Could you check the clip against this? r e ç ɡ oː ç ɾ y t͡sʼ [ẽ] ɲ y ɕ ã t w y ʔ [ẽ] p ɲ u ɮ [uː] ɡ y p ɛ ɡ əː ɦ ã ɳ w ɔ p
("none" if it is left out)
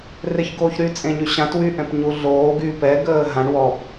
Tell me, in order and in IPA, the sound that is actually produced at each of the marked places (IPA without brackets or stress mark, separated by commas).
ẽ, ɛ̃, oː